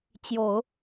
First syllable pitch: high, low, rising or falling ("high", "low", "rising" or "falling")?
low